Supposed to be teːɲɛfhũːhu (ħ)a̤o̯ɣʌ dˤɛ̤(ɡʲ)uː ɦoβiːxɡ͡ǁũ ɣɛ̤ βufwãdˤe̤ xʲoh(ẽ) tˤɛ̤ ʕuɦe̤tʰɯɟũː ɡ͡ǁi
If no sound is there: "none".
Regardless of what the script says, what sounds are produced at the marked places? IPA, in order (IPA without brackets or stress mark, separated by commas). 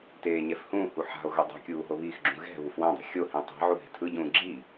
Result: ħ, kʲ, ĩ